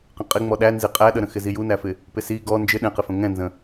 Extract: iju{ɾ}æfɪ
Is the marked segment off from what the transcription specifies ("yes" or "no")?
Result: yes